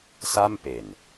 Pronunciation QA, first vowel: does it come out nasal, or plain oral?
oral